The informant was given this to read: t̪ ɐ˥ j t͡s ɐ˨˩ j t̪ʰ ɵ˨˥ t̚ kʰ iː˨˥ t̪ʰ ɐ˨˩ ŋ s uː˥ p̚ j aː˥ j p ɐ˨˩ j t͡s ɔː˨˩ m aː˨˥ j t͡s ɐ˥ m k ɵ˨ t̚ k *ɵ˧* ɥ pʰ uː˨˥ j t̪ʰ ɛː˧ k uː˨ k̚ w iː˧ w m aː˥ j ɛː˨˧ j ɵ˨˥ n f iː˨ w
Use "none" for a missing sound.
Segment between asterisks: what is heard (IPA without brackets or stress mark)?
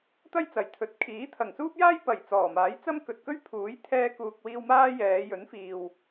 ɵ˥